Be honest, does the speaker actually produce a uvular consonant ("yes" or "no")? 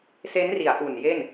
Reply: no